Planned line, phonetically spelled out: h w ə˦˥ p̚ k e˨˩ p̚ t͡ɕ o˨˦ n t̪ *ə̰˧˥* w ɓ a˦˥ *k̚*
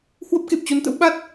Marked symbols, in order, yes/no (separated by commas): yes, no